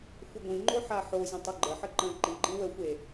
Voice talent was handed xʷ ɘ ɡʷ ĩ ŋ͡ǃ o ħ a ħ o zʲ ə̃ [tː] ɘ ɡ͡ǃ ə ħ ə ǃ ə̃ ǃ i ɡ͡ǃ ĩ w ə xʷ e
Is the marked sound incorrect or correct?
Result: incorrect